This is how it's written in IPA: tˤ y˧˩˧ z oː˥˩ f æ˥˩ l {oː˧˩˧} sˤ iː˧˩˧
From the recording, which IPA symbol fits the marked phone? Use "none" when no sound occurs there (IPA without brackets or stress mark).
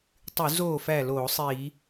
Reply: oː˧˩˧